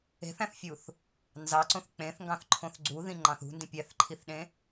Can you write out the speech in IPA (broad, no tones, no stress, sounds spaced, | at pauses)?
e̤ θ æ̃ θ fʲ u θ | n z ɑ ǀ õ θ k͡p ẽ θ ŋ ɡ ɑ̃ θ ǃʰ õ θ ɡ͡ǀ u ð ĩ ŋ͡ǃ ɑ̃ θ ṳ n d ĩ pʲ æ θ ǃʰ i θ ɗ ẽ